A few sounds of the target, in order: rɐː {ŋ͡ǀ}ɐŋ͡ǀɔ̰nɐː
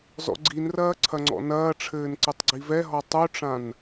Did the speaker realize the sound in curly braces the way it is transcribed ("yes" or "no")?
no